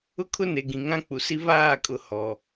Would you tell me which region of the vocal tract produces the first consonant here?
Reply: velum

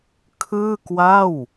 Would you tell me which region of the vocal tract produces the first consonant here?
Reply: velum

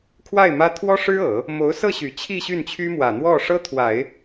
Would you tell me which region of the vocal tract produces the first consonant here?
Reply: velum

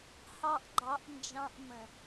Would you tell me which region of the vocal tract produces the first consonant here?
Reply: throat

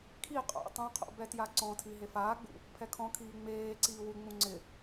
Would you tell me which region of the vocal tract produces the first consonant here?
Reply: velum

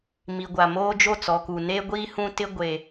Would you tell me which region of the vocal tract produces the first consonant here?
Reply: lips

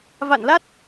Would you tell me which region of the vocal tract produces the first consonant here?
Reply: lips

